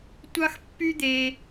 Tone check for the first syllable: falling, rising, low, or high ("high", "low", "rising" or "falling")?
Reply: high